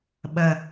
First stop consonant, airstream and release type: implosive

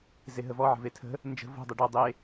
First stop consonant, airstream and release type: aspirated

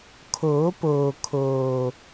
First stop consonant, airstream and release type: aspirated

